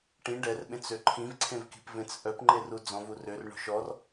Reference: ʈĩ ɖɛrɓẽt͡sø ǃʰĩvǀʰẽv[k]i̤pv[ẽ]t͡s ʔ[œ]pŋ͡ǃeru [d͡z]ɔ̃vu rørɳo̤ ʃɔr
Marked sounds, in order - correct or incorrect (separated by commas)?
correct, correct, correct, correct